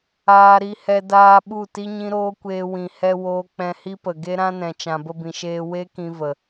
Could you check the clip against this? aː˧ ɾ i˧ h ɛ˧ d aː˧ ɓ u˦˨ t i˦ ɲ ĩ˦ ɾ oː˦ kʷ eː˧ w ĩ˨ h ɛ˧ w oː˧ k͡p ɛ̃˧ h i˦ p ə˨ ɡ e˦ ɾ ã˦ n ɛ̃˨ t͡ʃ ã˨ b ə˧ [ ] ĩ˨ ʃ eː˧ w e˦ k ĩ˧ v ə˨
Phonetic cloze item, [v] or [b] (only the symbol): b